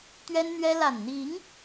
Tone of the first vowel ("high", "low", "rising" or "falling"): high